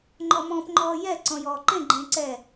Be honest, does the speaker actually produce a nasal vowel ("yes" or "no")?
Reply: yes